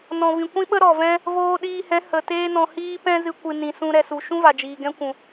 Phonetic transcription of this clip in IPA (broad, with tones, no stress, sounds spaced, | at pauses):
n ɔ̃˨ v ĩ˨ kʷ ĩ˦ ɓ ə˦ ɾ ɔ˨ v ɛ̃˦ | v oː˧ ɗ iː˧ h ɛ̃˨˦ h ə˨ t eː˦ n ɔ̃˧ h iː˦ p ɛ̃˦ z ɨ˧ kʷ ɨ˨ n ĩ˨ s ũ˧ ɾ ɛ˧ s u˨ ʃ ũ˦ v a˨ d͡ʒ iː˨ ɡ ɛ̃˦ kʷ ũ˨